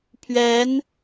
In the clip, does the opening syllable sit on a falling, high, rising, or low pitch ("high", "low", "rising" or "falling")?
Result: rising